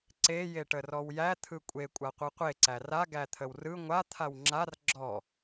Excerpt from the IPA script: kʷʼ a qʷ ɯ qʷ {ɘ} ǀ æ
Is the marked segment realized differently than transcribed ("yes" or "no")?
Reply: yes